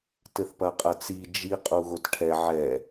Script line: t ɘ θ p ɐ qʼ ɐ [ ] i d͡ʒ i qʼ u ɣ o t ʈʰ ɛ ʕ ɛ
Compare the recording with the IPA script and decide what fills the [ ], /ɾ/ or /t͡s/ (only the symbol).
t͡s